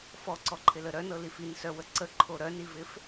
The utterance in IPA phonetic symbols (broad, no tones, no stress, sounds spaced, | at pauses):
f ɔ ǀ ɔ ǃʰ ɪ l ə ɾ œ n ɤ l i f i n s œ w ə ǀ ə ǃʰ o ɾ œ n i v ɪ f